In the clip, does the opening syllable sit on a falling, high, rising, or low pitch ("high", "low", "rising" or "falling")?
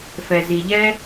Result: low